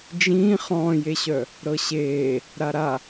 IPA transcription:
d͡ʒ ĩː χ ɔ̃ː j e ɕ œ | ɾ ɤ ɕ eː | ɾ a ɾ a

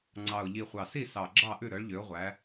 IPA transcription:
ŋ͡ǀ ɑ˨˩ ʊ̯ ʎ i˨˩ χʷ ɑ˨˩ s i˥˨ s ɑ˨˩ ɡ͡ǁ ɑ˥˨ ʔ ʉ˥˨ ɾ œ˨˦ ɭ ʎ ø˨˦ ʊ̯ ʁʷ æ˨˦

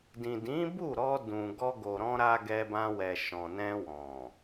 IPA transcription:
d ĩ˨ d ĩ˨˦ b u˦˨ ɾ ɔ˧ d ũ˨ ɡ ɔ˧ ɡ o˨ ɾ ɔ̃˧ ɾ a˧ ɡ ɛ˧ b ã˧ w ɛ˨ ʃ ɔ̃˨ n ɛ̃˧ w ɔ̃˨

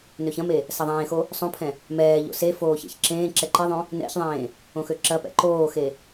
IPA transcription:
n ø ç ɐ̃ m e | s ɐ ðˤ ẽː x o | sˤ õ pʰ ɛ̃ | m ɛː ʎ o̰ s e f oː ç ḛ ç ǁ ẽː ǁ ɛ ǃ ɪ ðˤ õ | n ɛ̰ ç ðˤ ẽː | õ x ø ǁ ɐ p ɛ̰ ǃ oː x e

